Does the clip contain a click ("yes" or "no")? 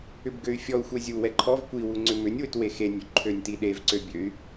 yes